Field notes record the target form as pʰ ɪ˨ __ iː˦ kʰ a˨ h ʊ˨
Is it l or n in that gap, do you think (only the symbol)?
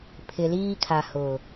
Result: l